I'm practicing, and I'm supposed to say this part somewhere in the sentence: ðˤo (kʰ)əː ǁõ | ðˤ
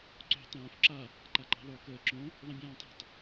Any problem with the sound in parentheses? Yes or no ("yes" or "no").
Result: yes